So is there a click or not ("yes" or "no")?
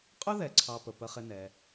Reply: yes